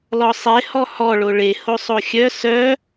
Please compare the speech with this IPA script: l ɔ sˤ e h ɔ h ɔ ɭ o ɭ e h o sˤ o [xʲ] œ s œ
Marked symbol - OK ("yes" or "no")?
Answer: yes